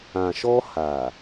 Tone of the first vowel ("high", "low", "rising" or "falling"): low